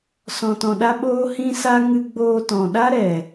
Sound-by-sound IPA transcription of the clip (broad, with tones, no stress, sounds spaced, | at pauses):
s ɔ̃˧ t ɔ̃˧ ɗ a˦ ɓ oː˦ h ĩ˦ s a˦ ŋ ɨ˧ ɡ͡b oː˧ t ɔ̃˨ ɗ a˦ ɾ ɛ˨